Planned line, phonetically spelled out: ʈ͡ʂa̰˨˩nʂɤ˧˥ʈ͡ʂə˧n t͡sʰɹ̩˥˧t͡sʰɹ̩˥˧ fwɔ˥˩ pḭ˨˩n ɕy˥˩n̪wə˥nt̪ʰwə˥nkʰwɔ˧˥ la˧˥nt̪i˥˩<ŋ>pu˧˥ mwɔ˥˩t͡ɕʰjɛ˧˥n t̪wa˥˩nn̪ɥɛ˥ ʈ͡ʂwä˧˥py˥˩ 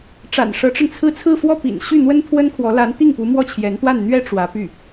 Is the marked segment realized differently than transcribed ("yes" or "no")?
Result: no